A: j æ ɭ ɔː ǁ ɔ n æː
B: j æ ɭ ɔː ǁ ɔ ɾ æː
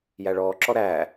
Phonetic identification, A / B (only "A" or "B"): B